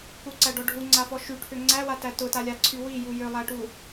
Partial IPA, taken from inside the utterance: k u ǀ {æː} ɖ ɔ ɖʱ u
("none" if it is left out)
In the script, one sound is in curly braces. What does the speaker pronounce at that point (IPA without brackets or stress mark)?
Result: æ